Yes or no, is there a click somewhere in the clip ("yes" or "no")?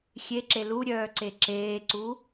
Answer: yes